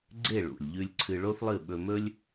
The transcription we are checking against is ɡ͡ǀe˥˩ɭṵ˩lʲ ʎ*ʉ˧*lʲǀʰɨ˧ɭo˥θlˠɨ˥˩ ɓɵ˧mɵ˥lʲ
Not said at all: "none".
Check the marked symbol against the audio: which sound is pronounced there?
ʉ˧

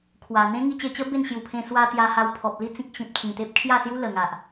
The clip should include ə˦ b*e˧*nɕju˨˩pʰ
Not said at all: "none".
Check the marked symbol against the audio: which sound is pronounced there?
e˥˧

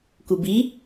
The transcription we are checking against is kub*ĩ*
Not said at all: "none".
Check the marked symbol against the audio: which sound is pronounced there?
i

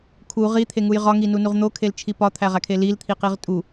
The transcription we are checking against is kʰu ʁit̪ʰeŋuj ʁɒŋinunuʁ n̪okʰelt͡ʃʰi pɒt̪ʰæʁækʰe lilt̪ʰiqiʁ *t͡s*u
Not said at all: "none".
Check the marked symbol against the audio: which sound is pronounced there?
tʼ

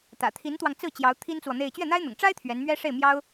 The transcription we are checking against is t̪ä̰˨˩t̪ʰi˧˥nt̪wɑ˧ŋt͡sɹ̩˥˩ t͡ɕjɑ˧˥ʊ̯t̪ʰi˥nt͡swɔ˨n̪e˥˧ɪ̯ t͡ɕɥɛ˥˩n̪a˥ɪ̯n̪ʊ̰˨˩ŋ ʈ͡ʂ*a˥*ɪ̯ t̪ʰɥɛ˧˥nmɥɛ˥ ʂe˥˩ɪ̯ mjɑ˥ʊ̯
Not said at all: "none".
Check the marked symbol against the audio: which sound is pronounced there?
a˥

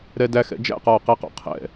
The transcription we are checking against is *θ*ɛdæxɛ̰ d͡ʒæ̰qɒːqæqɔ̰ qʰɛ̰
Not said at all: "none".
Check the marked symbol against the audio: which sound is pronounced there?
ɾ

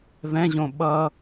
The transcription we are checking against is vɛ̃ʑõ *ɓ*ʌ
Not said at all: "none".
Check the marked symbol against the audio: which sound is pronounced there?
ɓ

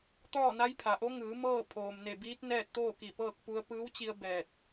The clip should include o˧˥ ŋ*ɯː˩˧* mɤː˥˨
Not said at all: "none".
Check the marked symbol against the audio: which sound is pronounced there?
ɯː˩˧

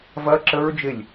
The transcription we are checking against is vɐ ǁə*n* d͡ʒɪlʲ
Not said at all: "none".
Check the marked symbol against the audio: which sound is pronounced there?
ɹ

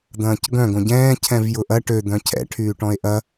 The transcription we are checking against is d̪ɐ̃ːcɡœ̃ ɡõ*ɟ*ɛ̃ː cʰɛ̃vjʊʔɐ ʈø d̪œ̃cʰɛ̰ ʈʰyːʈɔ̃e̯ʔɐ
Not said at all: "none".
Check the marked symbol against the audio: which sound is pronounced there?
ɟ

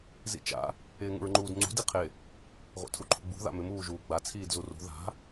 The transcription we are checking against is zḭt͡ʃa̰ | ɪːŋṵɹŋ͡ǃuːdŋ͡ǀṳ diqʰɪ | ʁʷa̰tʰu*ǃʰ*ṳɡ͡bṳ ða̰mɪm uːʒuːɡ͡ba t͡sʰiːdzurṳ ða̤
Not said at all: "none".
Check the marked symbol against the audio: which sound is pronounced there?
ǃʰ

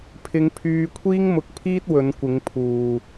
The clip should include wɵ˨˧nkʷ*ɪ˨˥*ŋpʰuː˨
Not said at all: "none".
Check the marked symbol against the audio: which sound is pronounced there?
ɪ˨˧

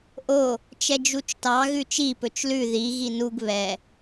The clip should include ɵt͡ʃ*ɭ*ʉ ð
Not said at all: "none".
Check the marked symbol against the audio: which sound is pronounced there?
l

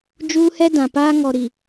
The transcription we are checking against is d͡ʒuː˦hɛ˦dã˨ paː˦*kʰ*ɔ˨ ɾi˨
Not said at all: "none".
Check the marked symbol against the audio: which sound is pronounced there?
ŋ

